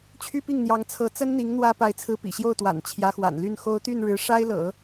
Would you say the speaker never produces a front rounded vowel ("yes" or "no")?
no